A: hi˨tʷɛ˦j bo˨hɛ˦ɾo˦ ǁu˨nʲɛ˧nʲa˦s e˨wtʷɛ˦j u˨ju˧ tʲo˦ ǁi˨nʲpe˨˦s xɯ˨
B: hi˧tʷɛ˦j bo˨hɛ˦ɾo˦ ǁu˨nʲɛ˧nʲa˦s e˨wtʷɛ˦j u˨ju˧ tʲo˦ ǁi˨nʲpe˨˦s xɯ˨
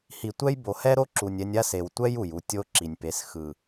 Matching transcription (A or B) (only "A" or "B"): A